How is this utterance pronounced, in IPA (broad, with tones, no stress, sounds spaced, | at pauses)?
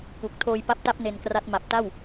k u˨˩ k̚ tʰ oː˧ j p a˦˥ p̚ t a˦˥ p̚ n e˧ n k r a˦˥ t̚ m a˨˩ p̚ t a˥˩ w